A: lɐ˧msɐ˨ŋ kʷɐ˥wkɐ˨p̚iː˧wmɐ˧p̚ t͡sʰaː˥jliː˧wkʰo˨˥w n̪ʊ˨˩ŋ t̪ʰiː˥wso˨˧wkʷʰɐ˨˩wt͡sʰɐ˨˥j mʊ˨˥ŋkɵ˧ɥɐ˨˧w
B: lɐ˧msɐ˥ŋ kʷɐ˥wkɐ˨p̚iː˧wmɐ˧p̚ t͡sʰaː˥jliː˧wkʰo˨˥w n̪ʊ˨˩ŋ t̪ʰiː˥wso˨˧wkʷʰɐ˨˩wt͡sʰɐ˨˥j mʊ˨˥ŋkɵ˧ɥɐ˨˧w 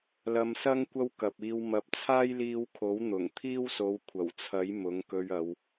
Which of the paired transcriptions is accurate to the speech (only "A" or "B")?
B